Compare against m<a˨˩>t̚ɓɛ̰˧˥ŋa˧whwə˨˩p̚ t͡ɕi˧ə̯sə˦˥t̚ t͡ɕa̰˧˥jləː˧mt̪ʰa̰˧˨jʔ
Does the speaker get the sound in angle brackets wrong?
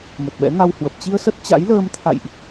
yes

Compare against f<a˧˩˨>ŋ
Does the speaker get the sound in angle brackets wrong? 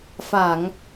no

